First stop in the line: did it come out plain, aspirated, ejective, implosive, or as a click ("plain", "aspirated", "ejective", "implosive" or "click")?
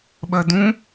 implosive